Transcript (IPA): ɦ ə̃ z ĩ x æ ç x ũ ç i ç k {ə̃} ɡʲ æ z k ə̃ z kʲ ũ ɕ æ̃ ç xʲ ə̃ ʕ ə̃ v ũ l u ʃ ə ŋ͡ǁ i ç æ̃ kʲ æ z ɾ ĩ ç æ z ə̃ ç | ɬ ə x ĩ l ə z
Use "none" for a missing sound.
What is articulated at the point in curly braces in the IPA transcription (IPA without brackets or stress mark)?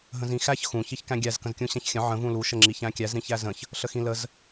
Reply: æ̃